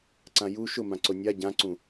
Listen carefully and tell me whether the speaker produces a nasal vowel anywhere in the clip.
yes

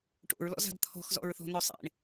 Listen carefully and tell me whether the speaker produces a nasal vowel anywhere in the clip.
no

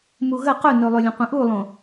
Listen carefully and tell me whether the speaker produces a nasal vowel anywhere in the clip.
yes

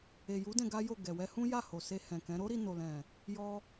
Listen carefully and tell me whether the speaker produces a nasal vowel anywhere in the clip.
yes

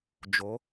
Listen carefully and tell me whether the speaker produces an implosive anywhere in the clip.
no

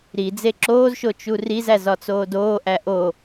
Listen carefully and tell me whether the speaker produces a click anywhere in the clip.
yes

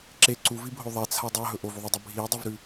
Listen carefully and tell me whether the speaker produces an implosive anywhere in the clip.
no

